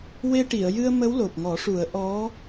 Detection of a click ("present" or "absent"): absent